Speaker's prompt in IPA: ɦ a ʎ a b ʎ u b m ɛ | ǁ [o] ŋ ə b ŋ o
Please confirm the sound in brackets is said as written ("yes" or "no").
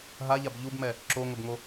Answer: yes